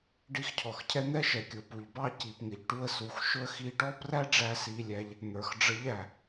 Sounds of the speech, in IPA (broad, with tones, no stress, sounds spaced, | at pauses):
ɖ i˧˥ x cʰ ɔ˩ x cʰ ɛ˥ n̪ ɛ˥ ʃ ɛ˩˧ kʲ ʊ˩˧ p u˩ ʎ b ɑ˥ c i˩ p ŋ ɪ˩ ʎ ʈ u˧ ə̯ s u˩˧ x ʃ ʊ˥ ə̯ x i˧ ʈ ɔ˥ p r æ˥ ɖ͡ʐ æ˥ s i˧ lʲ æ˧˥ ʎ | n̪ ə˞˩ x ɖ͡ʐ ə˧˥ ʎ æ˩